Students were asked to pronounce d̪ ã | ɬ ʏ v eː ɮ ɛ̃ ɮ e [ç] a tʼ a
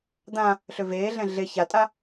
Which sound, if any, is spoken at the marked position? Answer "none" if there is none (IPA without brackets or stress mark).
ç